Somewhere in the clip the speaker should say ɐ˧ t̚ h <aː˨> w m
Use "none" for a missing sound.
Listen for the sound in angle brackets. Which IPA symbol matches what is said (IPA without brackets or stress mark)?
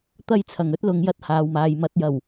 aː˨